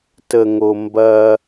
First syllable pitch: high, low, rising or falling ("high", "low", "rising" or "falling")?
low